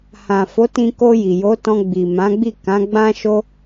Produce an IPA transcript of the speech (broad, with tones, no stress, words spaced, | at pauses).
hã˨ fo˨˦tĩ˧ko˧ ji˨jo˨˦tɔ̃˧ ɡ͡bi˨ mã˨˦ɡ͡bi˦˨ kã˨˦ɡ͡bã˦ʃo˦